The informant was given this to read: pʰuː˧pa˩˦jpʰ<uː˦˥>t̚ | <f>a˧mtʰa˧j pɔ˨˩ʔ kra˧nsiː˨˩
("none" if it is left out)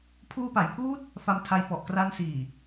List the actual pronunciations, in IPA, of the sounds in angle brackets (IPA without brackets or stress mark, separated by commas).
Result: uː˦˥, f